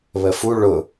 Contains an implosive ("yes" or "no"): no